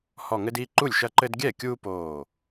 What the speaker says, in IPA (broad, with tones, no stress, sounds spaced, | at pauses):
h ɔ˧˩ ŋ ɘ˦ d i˩˧˩ ǃ u˥˩ lʲ ʃ ɐ˦ ǃ ɘ˦ d ɡʲ ɛ˥˩ kʲ uː˦ p oː˧˩